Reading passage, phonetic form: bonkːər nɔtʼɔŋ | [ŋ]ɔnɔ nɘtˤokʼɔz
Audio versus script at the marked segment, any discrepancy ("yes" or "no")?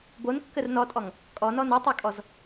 yes